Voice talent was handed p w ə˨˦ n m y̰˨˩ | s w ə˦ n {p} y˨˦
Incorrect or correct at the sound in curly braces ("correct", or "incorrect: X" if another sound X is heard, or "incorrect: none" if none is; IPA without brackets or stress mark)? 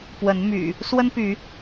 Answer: correct